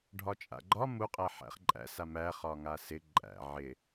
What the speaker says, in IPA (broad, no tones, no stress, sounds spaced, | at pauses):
ɖʱ ɒ t͡ʃʼ a̰ ɡ͡ǃ ɒ m u qʼ æ ħ æ̰ χ ǃʼ æ̰ s a m æ χ ɒ ŋ a s ɪ ǃʼ æ̰ ʕ ɪ